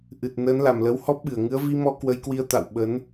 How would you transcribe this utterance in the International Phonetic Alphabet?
ʔ ɨ˨˩ t̚ n əː˨˦ n l a˨˩ m l ə˨˦ w h ɔ˦˥ p̚ ɓ ɨ˧˩ ə̯ ŋ ɨ˨˦ ə̯ v i˧ m ɔ˧ k w ə˧ j k w i˧ ə̯ t̪ a̰˧˨ w ɓ ə˨˦ n

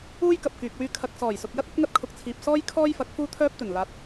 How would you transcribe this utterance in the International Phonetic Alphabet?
uː˥ j k ɐ˨ p̚ k yː˨ k̚ w yː˥ kʰ ɐ˧ k̚ s ɔː˨˩ j s ʊ˨ k̚ j ɐ˥ t̚ ɐ˨˥ t̚ ŋ ɐ˥ t̚ kʰ ʊ˨ k̚ t͡sʰ iː˨ p̚ s ɔː˥ j kʰ ɔː˥ j f ɐ˨˥ k̚ f uː˥ t̪ʰ œː˥ p̚ t̪ ɵ˨˩ n l aː˨ t̚

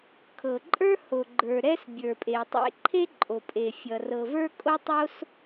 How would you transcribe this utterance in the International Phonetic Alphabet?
kʰ ɤ˩ ǃʼ ə˞˥ h o˩ ɡ͡ǃ ə˞˩ ɾ ɛ˥ s bʲ ə˞˩ pʼ e˩ tˤ ḛ˥ ǃʰ e˥ ǃʼ o˩ pʼ e˩ fʲ ʌ˩ r ɤ˩ v ə˞˥ kʼ o˥ tˤ o˥ s

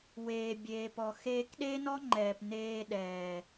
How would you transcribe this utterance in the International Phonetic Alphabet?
w eː˨ bʲ eː˨ p ɔ˨ x eː˧ k ɗ e˦ n ɔ˦ ŋ͡ǃ ɛː˨ p n eː˧ ɗ ɛː˨

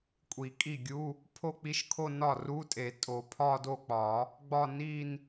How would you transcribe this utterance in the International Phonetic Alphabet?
kʷʼ i˨˩˦ kʼ i˥˩ ɡʲ u˧˥˧ | pʰ o˥˧ k͡p i˧˥˧ ʃ kʰ o˥˧ n ɒ˥˩ r u˧˥˧ tʼ e˨˩˦ tʼ o˨˩˦ pʰ ɒ˥˧ d o˥˩ k͡p ɒ˨˩˦ | ɡ͡b ɒ˥˧ n i˥˧ n

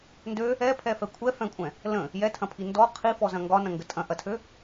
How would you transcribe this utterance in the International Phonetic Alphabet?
n d ø | ɛ pʰ ɛ f ɛ kʷʰ ɛ f ɛ̃ kʷʼ ɛ̃ | l ə̃ | j ɛ tʰ ɐ̃ pʰ i n d ɔ qʰ i f ɔ z ɐ̃ ŋ ɡ ɒ n ɐ̃ ŋ ɡ ə tʼ ɐ̃ ʔ ɐ tʰ ø

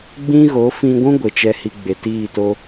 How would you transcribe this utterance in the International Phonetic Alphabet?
ɡ͡b ĩ˦ ɣ o˨˦ f ĩ˧ ɡʷ ũ˦ ɡʷ e˨ t͡ʃ ɛ˦ h i˧ ɡ͡b e˨ t iː˦˨ t o˦

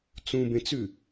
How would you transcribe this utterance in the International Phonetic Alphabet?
t͡s ũ b ẽ t͡s ʉ

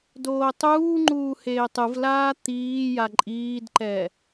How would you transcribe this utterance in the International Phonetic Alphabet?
d oː tˤ uː ŋ͡ǃ uː h eː tˤ ɯ v l aː t̪ iː j a ǃʼ iː d ǃ ɛ

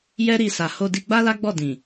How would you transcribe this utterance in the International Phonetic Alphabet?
j ɛ˦ ɾ i˧ s a˨ h o˧ d i˧ ɡ͡b a˦ l a˦ ɡ͡b ɔ˦˨ d ĩ˨

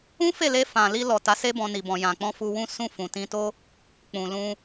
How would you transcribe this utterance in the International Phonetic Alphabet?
ũ˦ f e˦˨ l e˧ f ã˨ l i˧ l ɔ˨ t a˨˦ s e˦ b ɔ̃˧ n i˨ b ɔ̃˨ j ã˨ k͡p ɔ̃˧ f u˧ w ũ˦ s ũ˧ f ũ˨ t ĩ˧ t o˦ | k͡p ũ˨ l ũ˧

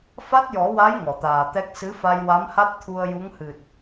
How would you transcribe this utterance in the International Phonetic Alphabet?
f a˦˥ t̚ j ɔ˨˩˦ w a˧˥ j ŋ ɔ˨˩˨ t̪ aː˨˩ t̪ ɛ˦˥ k̚ s ɨ˧˥ f a˧ j w a˧˥ m h a˦˥ t̚ t̪ʰ u˧ ə̯ j u˧˥ ŋ h ɨ˨˩ t̚

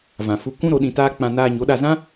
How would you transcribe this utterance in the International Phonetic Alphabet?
v ã˨ f u˧ kʷ ũ˦ ɾ o˨˦ ɗ ĩ˧ t aː˦ k͡p ã˧ n aː˧ ɲ o˨˦ ɗ a˧ z ã˦

